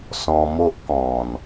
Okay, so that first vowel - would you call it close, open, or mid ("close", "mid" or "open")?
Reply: mid